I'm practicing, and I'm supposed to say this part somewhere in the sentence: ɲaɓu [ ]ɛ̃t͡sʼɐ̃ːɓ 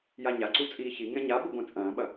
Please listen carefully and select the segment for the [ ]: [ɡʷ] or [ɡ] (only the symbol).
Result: ɡʷ